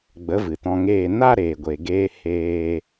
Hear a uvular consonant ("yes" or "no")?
no